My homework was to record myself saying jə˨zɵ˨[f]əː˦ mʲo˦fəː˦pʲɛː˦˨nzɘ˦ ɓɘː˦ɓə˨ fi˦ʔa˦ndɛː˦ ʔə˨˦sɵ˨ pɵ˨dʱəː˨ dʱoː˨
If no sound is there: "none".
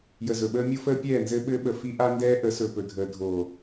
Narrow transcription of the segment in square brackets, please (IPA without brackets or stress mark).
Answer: ɓ